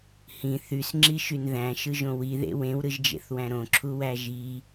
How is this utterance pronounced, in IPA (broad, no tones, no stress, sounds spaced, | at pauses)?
h ĩ θ y s ŋ͡ǁ i ʃ y n ð æ̃ ʃ ɯ ʒ õ w i ð ḛ w ẽ w ɾ ɯ ʒ d͡ʒ ḛ θ w æ̃ ɾ õ ǁʰ u w æ ʒ i